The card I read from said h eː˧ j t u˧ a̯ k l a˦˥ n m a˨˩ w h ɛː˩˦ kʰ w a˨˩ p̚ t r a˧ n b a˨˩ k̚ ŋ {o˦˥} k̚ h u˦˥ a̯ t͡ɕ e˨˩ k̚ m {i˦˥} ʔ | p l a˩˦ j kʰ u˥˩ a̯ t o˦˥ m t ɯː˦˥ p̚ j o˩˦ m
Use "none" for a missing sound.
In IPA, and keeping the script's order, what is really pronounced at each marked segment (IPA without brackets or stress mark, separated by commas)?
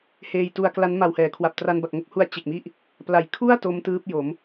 o˥˩, i˦˥